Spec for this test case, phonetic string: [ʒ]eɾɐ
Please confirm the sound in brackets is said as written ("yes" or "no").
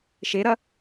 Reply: no